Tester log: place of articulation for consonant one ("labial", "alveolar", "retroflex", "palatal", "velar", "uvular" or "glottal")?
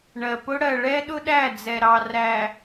retroflex